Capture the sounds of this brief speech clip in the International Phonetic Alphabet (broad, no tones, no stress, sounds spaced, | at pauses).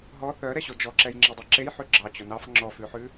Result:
ɦ ɔ θ œ ɾ ɛ ɕ o d͡ʒ ɔ ǁ ɛ j ŋ͡ǁ ɛ dˤ ɛ ǁ e j ħ ʉ ɡ͡ǁ ɑ t͡ɕ o n ɑ f ŋ͡ǁ ɔ f ʉ ħ ʉ